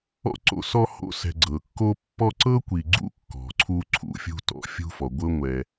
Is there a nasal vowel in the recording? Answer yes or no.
no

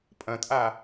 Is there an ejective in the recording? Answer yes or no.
yes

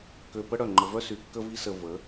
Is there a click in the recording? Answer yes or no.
yes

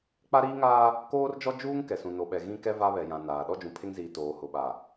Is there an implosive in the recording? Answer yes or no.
yes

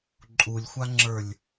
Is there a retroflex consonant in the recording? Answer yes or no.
no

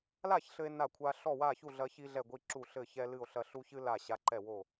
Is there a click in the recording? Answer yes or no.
yes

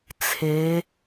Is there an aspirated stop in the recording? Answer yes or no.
yes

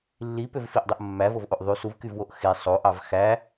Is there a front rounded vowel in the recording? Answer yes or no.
yes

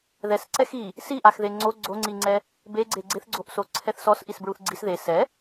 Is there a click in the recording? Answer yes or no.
yes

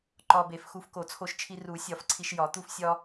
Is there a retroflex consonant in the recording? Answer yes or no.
no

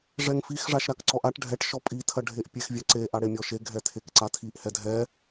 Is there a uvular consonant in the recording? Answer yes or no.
no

